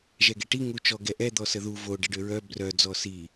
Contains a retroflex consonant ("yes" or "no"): yes